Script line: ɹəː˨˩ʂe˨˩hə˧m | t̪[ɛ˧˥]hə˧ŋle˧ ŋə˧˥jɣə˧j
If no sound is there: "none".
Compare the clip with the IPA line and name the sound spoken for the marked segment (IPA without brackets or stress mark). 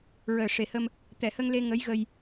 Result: ɛ˨˩˨